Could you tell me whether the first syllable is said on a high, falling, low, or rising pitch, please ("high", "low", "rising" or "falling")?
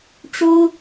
high